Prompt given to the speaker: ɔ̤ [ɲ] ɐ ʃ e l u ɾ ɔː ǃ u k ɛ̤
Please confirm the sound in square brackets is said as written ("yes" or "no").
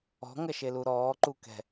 no